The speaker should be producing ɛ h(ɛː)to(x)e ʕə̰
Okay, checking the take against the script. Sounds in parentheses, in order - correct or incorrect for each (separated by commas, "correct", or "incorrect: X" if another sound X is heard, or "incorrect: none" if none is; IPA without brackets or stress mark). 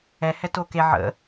incorrect: ɛ, incorrect: k